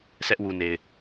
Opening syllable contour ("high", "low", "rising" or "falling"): high